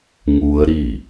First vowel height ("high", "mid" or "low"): high